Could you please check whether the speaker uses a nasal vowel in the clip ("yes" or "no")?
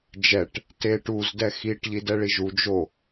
no